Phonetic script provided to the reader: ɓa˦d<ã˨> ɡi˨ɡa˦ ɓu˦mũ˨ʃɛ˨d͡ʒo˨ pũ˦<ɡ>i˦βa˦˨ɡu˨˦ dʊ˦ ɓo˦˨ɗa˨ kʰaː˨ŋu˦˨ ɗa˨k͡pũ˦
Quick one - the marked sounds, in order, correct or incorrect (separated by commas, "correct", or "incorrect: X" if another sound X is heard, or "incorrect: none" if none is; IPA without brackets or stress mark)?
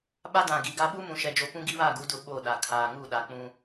correct, correct